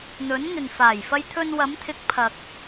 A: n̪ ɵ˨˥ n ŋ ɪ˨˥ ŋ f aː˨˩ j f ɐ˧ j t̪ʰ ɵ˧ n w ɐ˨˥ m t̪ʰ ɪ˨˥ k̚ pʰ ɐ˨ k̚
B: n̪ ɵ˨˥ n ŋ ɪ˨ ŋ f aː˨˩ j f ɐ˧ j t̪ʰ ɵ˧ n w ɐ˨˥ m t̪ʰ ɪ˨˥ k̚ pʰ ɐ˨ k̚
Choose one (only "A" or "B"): B